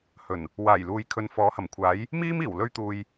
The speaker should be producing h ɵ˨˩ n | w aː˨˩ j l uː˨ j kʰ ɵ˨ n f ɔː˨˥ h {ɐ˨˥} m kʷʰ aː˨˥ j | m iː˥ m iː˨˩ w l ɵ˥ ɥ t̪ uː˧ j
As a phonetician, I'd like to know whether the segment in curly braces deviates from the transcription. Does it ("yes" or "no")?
yes